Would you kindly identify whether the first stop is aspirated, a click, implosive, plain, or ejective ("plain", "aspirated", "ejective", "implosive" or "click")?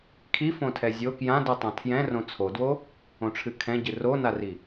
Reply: aspirated